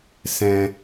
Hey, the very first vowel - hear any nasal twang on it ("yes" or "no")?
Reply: yes